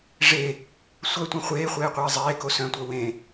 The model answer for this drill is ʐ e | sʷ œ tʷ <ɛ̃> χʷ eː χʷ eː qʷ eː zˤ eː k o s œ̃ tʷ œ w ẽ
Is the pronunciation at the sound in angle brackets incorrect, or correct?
incorrect